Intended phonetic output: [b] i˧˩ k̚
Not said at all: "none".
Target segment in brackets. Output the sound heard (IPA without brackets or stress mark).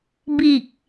b